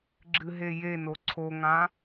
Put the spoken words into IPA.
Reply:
ɡ͡ǁ ɨ ɦ e j e n o ǀʰ o ŋ ã

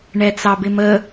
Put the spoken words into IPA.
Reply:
ɳ ɛ t͡s ɑ b ɪ m ə

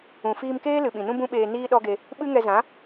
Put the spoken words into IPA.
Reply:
ũ˨ f iː˧ m k eː˦ l ɨ˨ ɓ ĩ˨ n ũ˦ b ũ˦ ɓ eː˧ n iː˦ ɗ ɔ˦ ɡ e˧ | ɓ ɨ˦ ŋ ɛ˧ z ã˨˦

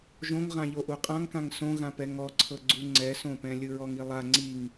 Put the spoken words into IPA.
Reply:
ʒ õ ŋ ʁ ã ʎ o ʔ u qʼ ã ŋ k ã ŋ s õ ɣ ã p ɛ ŋ ɔ ǀʰ ɤ ɡ͡ǀ u ŋ͡ǀ ɛ s õ p ɛ̃ lʲ ɯ ɹ ɔ ŋ i lˠ a ŋ͡ǀ i ŋ

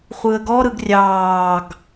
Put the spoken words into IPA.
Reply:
χʷ ɯ ə̯ ɡ ɔ ɾ ɯ ɡ rʲ ɑː ɡ

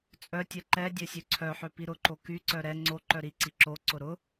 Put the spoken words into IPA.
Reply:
t͡sʼ œ tʲ ɛ ǃ ɛ dʲ œ sʲ ø ǀʰ œ ħ ø p i ɾ ʊ ǃ o k y ǀ œ ɾ ɛ ŋ͡ǀ o ǃ œ ɾ i ǀ i ǁ o ǀ ʊ ɾ ʊ

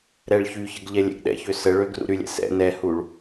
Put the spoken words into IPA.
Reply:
ɾ ɛ ɭ ç y ç ə ɡ ʎ ɛ lʲ ɛ̰ ɡ ɗ ɛ̰ ç ø s ə ɭ ø ɡ r ṵ ɾ y lʲ ɛ̰ s ɛ̰ n ɛ h u ɭ

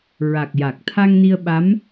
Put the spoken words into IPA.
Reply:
ɹ a˨˩ k̚ j a˨˩ k̚ t̪ʰ a˧ ŋ n i˧ ə̯ ɓ a˧˥ m

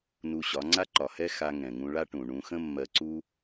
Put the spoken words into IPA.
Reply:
n u˧ ɕ ɒ˨˦ ŋ͡ǀ a˦ ǃ ɒ˨ h ɛ˦ x a˧ ŋ ɛ̃˨ ŋ ũ˧ ɭ a˦ ʈ ũ˨ ɳ ũ˧ x ə̃˦ mː ɜ˧ ǀ u˦

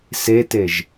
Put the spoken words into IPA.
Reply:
s e t e ʒ

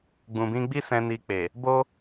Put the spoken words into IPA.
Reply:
ɡ͡b ũ˨ b ĩ˧ ɡ͡b i˦ s ɛ̃˧ n i˧ k͡p e˨ | b o˦

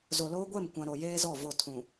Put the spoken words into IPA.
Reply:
z o˨ l oː˦ ɡʷ ɛ˦˨ m kʷ ã˨ ɾ o˨ j eː˦ z ɔ˦˨ v o˦˨ tʰ ũ˨

